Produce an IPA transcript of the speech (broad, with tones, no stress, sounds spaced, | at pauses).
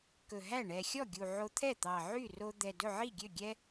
k ɵ˨˩ ɦ æ˥˩ ɳ ɛ˨˩ xʲ ɔ˥˩ ɡʲ u˨˩ ʕ o˧ t̪ʰ ɛ˥˩ t̪ ɑ˨˩ ʕ y˥˩ r o˧ d̪ ɛ˨˩ d ɵ˥˩ ʕ i˥˩ ɡʲ ø˥˩ ɡʲ ɛ˧